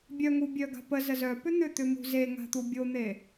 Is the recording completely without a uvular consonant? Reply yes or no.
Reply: yes